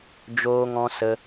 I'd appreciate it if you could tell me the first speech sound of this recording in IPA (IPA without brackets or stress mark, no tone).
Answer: d͡ʒ